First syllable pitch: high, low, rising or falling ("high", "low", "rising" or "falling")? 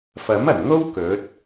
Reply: rising